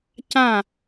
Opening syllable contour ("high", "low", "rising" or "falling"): falling